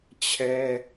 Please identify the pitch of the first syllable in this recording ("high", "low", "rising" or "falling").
high